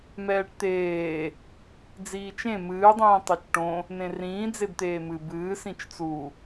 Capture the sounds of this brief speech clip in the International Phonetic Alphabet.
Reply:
mɛːʈt̪eː | d͡ziːt͡ʃẽ mɨː dˤĩːtˤot͡ʃʈõ | nẽrĩː d͡zebt̪eːmɨ bɨːs ĩt͡ʃt͡su

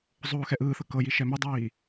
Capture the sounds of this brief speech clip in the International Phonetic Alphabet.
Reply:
zˤoːxɛʔɯːθɤ kɤji ʃɛmidˤiː

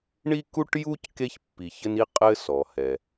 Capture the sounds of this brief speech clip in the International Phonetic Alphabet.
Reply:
ɳi˥ku˥ʈju˥c ke˦çpːi˨çɘ˦ni˦ qʼɘ˥ sɔ˩hɛ˩

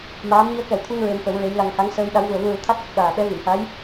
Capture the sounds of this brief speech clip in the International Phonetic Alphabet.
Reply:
maː˧˥m ɲi˧ə̯kɛ˨˩˦wt̪ʰu˧ŋ ɹe˧mfə˨˩˦wɹe˧˥jla˧ŋ ha˧˥ŋsəː˧jɗa˧˥w vu˨˩ə̯vu˧ɹu˨˩ t̪ʰa˦˥t̚kə˨˩k̚ ɗaː˨˩ɓɛ˧˥ vi˨˩˨mha˧˥j

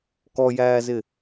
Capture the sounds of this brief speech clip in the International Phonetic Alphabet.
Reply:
kɔjæːzɪ

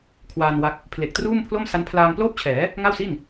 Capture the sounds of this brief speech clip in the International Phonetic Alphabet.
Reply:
kʰwaː˧nwa˦˥k̚ | pʰle˨˩k̚truː˥˩mpʰlo˥˩m sa˦˥npʰlaː˧ŋ ploː˥˩p̚t͡ɕʰɛː˩˦ | ŋa˥˩wsi˥˩n

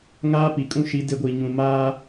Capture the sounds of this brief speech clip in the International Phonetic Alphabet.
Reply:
ŋaː˦pi˨kʼũ˦ʃi˨˦ de˦ɡʷiː˨ɲũ˨maː˦

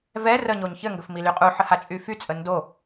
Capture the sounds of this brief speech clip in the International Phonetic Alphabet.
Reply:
vɛ rəɲoɲ çɘŋɡəf milyqʼuħə hat͡ʃʼyfyt͡sʼə ndo

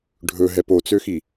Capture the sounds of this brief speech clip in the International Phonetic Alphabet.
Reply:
ɖʱɵɦɛp ot͡søxi

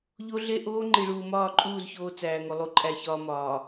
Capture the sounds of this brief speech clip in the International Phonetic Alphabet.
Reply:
ʎo˦ɮe˦ ʔoː˦ŋ͡ǃi˨ɭuː˨mɒː˦˨ ǃʼuː˦˨z çoː˦ t͡sæː˨ŋo˨ lˠu˨ǃʼæ˨çɒː˨ mɒː˨

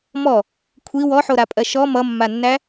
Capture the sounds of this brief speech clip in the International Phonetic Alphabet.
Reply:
mɔ | kʷʰi wɔħoɾapʼɜ ʃɔ mʌmːanːæ

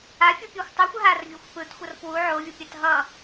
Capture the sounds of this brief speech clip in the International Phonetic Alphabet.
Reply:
a fʲupʲoxʷtˤuxʷ ɦarvʲoxʷ pɯtxʷʌr pwu ʕovʲopʲat ɦʌ

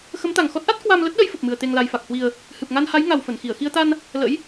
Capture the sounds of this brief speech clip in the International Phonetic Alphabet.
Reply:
xə˨˦mt̪a˨˩ŋxɔ˦˥t̚ʔa˦˥t̚ kwa˧m lə˦˥t̚ɗə˨˦jfə˨˩p̚mɨ˨˩ə̯ t̪e˨˩ŋla˨˩jfa˨˩k̚hwi˨˩ə̯ | hɨ˨˩p̚ŋa˧nha˨˦j ŋa˨˩wfə˧˩nxi˧˩ə̯ xi˧ə̯t̪a˧n | lə̰˧˥j

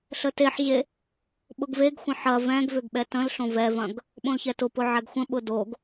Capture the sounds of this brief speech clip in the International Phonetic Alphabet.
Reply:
ɬəteħʑe | ɓʊɡveɡxʷə̃ ħɐ vɛ̃ɡvʏɡ ɓɛtə̃lɬõ vɛvɐ̃ɡ | ɓõlçɛtʊpʊ ʕɛɡxʷə̃ɓʊ doɡ

